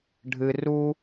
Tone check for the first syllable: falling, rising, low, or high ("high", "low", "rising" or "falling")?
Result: low